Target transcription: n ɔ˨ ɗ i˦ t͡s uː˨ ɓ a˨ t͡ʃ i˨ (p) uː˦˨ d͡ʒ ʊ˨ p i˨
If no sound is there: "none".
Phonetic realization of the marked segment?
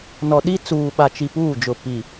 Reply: p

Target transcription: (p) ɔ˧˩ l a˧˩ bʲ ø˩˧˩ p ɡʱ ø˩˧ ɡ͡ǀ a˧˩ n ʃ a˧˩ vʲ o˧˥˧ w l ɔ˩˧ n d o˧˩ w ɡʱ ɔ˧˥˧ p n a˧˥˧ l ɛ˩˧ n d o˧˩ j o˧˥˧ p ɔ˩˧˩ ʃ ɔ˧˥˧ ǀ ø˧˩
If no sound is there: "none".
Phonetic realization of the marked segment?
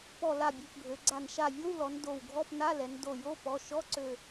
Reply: p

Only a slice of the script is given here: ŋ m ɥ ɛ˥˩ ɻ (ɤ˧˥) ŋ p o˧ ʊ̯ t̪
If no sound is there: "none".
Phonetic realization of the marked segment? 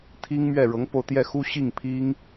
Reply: ɤ˧˥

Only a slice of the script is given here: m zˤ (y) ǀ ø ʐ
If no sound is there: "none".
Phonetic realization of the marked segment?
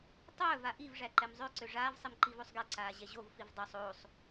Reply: ø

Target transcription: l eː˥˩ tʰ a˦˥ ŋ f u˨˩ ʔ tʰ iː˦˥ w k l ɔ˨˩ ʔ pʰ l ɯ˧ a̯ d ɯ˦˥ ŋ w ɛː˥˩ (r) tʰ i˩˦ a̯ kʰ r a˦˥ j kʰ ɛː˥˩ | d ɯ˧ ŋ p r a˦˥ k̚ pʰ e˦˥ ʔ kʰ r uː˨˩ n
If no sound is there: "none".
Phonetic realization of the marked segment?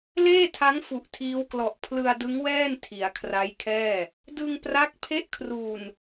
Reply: n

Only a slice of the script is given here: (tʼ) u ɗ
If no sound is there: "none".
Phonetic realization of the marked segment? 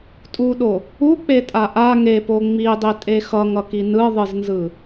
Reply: tʼ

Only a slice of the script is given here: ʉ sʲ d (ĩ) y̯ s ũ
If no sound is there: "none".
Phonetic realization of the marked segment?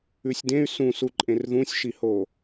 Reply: ẽ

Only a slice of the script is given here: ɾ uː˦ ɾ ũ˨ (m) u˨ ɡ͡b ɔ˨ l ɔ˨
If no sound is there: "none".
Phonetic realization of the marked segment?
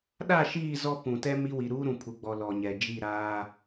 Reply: pʰ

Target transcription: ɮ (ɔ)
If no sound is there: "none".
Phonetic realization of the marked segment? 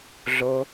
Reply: o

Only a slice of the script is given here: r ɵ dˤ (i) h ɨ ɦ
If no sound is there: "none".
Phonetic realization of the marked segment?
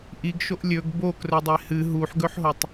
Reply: e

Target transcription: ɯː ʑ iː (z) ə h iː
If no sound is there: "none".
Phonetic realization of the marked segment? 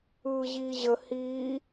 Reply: ʑ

